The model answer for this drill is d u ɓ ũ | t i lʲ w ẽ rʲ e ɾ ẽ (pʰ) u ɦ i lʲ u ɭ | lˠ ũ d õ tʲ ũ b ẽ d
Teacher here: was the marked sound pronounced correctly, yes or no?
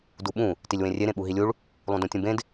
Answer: no